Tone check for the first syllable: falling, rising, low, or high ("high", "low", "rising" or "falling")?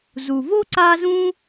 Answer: low